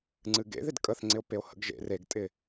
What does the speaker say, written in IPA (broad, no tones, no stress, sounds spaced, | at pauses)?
ŋ͡ǀ ɨ ɡ ḛ ð ɪ d kʼ ə θ ŋ͡ǀ ɪ o̯ p e o̯ h ə̰ ɡ ʒ ḛ r e ɡ tʼ ɪ